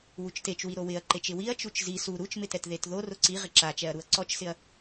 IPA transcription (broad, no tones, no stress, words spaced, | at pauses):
wut͡ʃtet͡ʃwi ɾowɪɐ̯ǃet͡ʃ ɪwiɐ̯ t͡ʃut͡ʃzi su ɾut͡ʃmɪtɛt ðetðo rʊǀi ʁɪǁat͡ʃɛɐ̯ɾuɐ̯ ǀɔt͡ʃsɪɐ̯